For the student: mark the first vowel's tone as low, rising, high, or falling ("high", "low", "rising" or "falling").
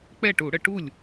falling